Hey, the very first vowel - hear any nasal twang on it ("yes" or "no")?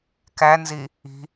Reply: no